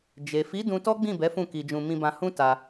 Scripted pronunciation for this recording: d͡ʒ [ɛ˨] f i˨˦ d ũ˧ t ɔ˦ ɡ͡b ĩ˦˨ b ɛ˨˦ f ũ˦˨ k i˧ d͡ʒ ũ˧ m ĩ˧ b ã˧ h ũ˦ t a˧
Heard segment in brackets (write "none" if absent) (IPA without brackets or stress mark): e˨